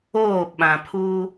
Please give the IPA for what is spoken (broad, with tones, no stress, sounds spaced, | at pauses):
oː˦˨ ɓ ã˨ pʰ uː˦